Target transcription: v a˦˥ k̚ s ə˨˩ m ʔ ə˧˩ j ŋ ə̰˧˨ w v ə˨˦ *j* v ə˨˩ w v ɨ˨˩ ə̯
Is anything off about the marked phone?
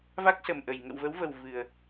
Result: yes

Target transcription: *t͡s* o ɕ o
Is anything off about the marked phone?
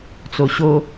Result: no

